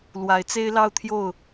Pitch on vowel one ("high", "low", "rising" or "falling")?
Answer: rising